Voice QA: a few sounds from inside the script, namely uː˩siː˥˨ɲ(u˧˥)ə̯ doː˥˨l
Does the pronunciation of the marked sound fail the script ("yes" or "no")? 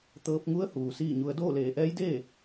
yes